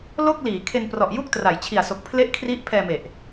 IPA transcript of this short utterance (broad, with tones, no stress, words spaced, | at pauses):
lo˥˩k̚liː˩˦ kʰe˧nprɔ˨˩ʔju˥˩k̚ tra˩˦jt͡ɕʰi˨˩a̯so˨˩k̚ pʰle˥˩ʔkʰri˦˥ʔ pʰɛː˧me˨˩ʔ